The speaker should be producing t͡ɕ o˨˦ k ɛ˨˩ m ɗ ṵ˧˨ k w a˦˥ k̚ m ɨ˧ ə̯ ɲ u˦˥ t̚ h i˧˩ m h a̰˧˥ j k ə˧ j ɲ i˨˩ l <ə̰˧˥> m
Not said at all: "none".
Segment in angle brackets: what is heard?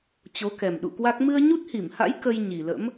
ə̰˧˥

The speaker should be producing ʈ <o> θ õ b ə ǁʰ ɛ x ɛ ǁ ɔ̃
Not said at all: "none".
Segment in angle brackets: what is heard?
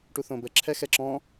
u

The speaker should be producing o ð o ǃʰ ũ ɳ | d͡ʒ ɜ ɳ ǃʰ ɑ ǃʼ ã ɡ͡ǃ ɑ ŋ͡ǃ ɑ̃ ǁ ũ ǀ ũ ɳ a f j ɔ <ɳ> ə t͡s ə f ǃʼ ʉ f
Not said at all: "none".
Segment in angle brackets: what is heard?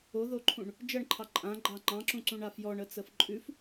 ɳ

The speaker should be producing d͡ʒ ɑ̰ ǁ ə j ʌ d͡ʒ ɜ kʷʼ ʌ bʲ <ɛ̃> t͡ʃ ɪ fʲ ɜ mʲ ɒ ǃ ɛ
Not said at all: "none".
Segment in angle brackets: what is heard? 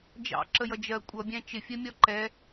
æ̃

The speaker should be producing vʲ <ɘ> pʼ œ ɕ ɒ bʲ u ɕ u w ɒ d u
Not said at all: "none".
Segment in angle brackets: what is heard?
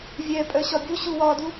ɛ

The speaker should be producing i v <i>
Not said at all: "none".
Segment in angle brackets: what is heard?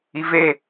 e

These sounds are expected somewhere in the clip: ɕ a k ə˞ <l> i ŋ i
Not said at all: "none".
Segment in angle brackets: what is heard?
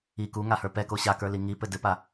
l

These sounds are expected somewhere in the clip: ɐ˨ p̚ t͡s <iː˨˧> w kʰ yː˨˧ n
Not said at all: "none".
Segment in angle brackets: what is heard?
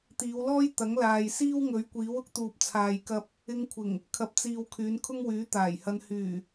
iː˨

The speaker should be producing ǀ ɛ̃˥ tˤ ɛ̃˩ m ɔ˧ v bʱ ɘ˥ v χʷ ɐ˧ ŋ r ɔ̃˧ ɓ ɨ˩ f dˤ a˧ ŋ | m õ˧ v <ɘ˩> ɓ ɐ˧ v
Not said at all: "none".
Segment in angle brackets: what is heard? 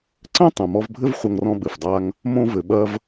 ɘ˩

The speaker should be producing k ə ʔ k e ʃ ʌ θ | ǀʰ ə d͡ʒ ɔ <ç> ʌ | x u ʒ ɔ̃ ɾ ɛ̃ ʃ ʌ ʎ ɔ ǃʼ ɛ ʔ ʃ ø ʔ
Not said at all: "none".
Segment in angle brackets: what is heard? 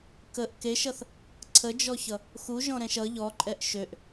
ç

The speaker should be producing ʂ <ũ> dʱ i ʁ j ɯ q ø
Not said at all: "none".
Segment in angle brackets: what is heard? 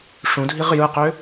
ũ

